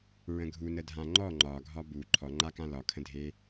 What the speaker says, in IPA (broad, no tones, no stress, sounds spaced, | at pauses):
ɹ ə̃ ɡʱ u n ə dʱ ã ŋ͡ǃ ɔ ŋ͡ǃ ɒ ɡʱ ɒ b u ǃʰ ɔ ŋ͡ǃ a k ã l ɒ kʰ ə̃ dʱ e